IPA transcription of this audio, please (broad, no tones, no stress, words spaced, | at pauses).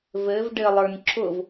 vɘv ɖɘlˠə˞n ǁʊv